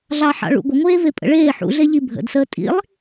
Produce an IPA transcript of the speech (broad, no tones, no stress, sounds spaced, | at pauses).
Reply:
ɮ ɑ ħ ɑ̰ ɭ ṵ ɡʷ ə ŋʷ eː v e pʼ ə̰ ɭ eː ħ ṵ ɮ e ʎ i bʱ ə̰ d s əː tʼ ḭ lˠ